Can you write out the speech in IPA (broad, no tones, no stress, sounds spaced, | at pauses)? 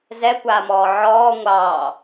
z ɛ kʷ aː m ɔː ʕ ɔː ŋʷ ɑː